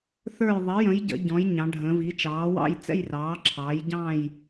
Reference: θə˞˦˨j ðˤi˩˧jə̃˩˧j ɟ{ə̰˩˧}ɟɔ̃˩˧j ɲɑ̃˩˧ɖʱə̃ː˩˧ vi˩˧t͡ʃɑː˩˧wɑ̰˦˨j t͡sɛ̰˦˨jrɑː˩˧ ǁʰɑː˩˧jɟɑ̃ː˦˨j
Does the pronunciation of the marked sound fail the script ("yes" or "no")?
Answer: no